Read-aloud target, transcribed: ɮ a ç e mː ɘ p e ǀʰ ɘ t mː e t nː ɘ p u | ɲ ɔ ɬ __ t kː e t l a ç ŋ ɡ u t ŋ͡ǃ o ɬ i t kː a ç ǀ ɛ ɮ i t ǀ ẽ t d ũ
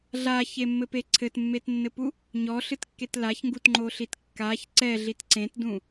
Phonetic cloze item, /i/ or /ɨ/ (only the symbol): ɨ